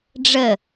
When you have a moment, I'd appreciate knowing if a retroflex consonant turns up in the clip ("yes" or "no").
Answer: yes